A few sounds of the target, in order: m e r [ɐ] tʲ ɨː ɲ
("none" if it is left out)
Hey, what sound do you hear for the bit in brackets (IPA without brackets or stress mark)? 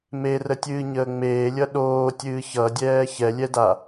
ə